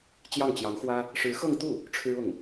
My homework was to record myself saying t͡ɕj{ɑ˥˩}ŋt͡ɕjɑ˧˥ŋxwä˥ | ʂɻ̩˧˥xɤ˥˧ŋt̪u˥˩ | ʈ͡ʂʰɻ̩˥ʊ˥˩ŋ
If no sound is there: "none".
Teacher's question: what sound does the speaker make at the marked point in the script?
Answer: ɑ˥˩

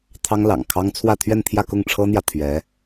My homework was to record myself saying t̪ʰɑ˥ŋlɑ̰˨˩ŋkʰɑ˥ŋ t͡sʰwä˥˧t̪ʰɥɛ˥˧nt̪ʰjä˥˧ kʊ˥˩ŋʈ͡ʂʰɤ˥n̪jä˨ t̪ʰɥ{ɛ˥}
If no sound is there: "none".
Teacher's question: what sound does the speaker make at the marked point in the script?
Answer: ɛ˧˥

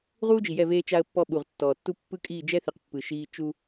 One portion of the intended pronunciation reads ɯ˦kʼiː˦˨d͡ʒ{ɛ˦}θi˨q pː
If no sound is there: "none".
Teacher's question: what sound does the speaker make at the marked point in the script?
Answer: ɛ˦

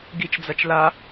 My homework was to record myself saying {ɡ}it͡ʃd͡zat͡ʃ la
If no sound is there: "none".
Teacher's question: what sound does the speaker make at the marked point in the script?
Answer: ɡ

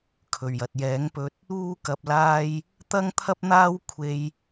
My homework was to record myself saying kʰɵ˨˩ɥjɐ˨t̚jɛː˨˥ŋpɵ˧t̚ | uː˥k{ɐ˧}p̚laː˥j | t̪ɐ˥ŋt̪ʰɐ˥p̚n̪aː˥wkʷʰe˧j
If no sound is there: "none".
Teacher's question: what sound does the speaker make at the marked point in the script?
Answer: ɐ˧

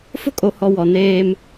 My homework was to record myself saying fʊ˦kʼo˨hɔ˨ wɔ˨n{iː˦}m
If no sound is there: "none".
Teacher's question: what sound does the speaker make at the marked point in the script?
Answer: eː˦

